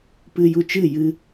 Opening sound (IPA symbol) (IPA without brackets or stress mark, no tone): p